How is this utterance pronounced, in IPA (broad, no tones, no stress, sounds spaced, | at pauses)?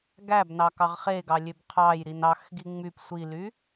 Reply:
ɡ æ b n ɑ k ɑ ʁ χ e ɡ ɑ lʲ ø b qʰ ɑ j ɾ i n ɑ x ɡ i ŋ͡m y p sʷ i l y